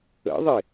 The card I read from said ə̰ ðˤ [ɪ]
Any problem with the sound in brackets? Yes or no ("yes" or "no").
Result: no